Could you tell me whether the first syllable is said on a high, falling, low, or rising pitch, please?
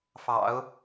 low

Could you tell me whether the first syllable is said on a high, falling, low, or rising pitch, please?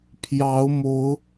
rising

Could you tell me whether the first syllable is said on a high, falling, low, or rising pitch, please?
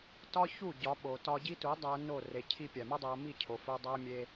high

